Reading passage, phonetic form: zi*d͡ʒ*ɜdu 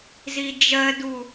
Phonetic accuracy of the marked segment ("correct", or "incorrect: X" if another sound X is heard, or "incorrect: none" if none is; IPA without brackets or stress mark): correct